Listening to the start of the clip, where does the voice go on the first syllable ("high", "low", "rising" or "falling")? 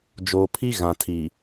low